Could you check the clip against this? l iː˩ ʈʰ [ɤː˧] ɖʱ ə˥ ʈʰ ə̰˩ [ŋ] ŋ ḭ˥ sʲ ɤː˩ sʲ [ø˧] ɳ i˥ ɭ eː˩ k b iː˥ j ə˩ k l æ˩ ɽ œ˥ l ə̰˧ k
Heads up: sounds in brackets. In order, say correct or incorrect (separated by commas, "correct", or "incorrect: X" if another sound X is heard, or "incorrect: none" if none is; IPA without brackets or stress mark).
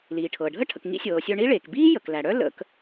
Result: incorrect: ɤː˩, incorrect: k, incorrect: œ˧